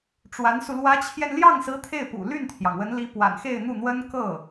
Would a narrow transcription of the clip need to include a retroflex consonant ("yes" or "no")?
yes